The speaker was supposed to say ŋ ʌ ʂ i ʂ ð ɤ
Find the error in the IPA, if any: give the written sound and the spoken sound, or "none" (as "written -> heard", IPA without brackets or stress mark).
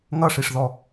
ɤ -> ɔ